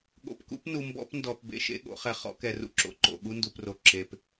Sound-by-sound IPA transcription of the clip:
ɠ o̰˨ p k ṵ˦ p n u˨ m b ɔ̰˦ p n d ɔ˨ p b ḛ˨ ʃ ḛ˦ ɠ o̰˨˦ χ ɛ˨ χ ɔ̰˦ k ɛ˨ r ṵ˦ ǁ o̰˨ ǃ o̰˨ ɠ u˦ n d u˨ p r o˨ ǁ e˨ p

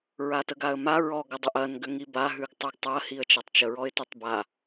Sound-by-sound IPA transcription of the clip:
ɹ a t ə ɡ a ə̯ m a ɹ ɔ ɡ ə dˤ ʏ ʔ ɐ n ɡ ʏ ŋ i b a ɦ ʉ ɡ tˤ ʏ ɡ tˤ ɐ h i ə̯ t͡ʃ a tˤ t͡ʃ ə ɹ ɔ ɪ̯ t ʏ tˤ b a

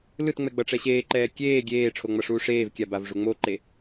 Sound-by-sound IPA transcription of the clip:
l ɯ t ŋ͡m ɛ ɡ͡b ʌ ʈ͡ʂ ɛ ɕ eː ǃ ɛː kʲ eː ɡʲ eː ʈ͡ʂʰ o ŋ͡m ʌ ʂ uː ʂ eː v kʲ a b a v ʐ u ŋ͡m o ǃ e

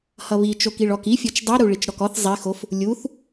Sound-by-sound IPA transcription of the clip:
h ʌ β i t͡ʃ o k i ɭ ɔ k i fʲ ɔ t͡ʃ dˤ i ɾ u ɭ i t͡ʃ ɾ ɔ k ɔ θ zˤ i x o f | lʲ u θ

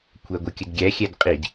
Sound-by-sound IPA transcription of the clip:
kʷʰ æ ɡʷ ə kʲ ə d ɡʲ æ xʲ æ d qʼ i d

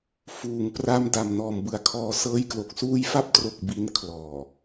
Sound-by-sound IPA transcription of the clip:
f uː˨˩ ŋ p r a˦˥ m d a˨˩ m n ɔː˨˩ m b ɯ˨˩ a̯ kʰ ɔː˧ s ɤː˧ j k l o˨˩ k̚ s uː˧ j f a˦˥ p̚ t r o˨˩ k̚ b i˦˥ n kʰ l ɔː˨˩

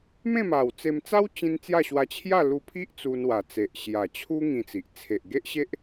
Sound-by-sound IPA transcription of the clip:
m ẽ˥˧ m a˨˩ w t͡s e˧ m t͡s a˦ w t͡ɕ ĩ˧ n t͡s j a˥˧ ɕ w a˧ t͡ɕʰ j a˥˧ l u˧ pʰ i˦ ʔ t͡s u˧ n w a˨˩ t͡s e˨ ʔ ɕ j a˨˩ t͡ɕʰ u˦ ŋ ĩ˧ t͡s i˨ ʔ t͡sʰ e˨ ʔ ɡ e˦ ʔ ɕ e˦ ʔ

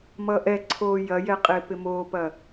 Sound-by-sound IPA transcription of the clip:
m ʌ ʔ ɛ ǀʰ oː j ɐ j ɛ qʼ ɪː p ɪ m oː p ɐ

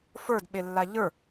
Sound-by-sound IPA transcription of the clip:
f ə˞ d ɓ e lː a ʎ ə˞

